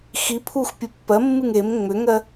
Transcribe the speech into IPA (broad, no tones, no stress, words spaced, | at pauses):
xipʰux pʲɨpːɜmːɨŋ em ŋ͡mʏŋɜ